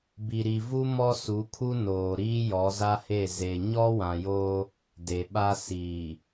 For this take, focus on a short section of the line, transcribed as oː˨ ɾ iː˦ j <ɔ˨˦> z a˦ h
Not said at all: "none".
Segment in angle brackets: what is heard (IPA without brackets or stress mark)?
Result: ɔ˨˦